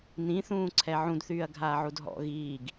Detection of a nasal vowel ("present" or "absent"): present